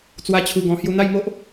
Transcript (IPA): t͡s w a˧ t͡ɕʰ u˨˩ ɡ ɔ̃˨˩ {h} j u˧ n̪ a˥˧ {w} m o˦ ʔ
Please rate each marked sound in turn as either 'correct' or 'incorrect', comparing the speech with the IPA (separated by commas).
correct, incorrect